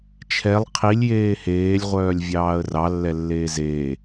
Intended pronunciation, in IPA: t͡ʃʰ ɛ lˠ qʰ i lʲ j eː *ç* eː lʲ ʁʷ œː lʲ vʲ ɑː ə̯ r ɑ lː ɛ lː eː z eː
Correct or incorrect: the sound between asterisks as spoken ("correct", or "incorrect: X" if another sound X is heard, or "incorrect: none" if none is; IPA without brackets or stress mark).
incorrect: h